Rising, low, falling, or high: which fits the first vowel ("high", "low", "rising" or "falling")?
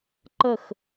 falling